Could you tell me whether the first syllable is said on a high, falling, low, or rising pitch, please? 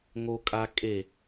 high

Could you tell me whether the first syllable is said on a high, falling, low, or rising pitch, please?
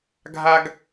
high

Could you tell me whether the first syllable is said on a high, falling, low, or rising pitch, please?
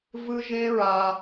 high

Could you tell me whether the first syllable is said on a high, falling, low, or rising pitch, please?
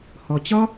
low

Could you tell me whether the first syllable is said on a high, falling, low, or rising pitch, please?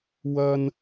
high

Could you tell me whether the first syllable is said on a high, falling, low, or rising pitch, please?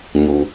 low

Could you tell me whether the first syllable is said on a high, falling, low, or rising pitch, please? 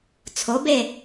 rising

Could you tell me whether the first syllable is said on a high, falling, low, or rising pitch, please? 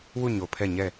falling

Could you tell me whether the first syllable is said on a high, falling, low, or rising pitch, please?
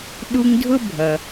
high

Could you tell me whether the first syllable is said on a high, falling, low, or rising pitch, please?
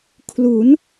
rising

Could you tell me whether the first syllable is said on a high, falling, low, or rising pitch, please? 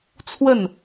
falling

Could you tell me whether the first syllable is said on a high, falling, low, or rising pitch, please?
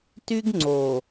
high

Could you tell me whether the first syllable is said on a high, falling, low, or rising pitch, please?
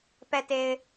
low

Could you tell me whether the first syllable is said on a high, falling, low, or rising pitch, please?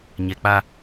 low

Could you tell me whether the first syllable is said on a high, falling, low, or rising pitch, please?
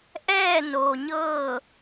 falling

